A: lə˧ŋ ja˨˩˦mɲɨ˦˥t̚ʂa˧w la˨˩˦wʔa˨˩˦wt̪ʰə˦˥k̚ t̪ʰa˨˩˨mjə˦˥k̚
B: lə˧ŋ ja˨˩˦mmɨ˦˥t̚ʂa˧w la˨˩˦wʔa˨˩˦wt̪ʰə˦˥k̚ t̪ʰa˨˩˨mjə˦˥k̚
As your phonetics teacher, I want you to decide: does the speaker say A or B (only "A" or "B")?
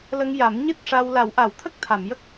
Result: A